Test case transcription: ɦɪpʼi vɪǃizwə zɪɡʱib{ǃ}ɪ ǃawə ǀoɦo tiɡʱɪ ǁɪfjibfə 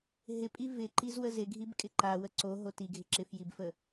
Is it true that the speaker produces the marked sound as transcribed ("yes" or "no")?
no